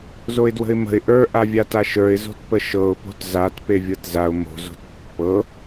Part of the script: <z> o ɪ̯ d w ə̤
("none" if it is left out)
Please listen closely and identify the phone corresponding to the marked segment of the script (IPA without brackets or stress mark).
z